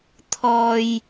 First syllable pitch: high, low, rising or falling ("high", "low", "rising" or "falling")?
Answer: low